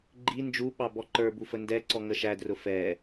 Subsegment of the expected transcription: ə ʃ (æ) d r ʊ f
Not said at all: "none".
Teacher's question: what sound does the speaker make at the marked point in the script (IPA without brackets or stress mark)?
æ